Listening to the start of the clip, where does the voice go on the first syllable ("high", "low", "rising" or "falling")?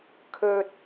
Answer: high